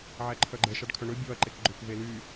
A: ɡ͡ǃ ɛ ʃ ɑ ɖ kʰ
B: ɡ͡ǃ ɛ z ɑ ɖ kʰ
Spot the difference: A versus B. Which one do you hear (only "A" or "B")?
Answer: A